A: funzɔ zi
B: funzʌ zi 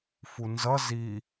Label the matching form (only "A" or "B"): B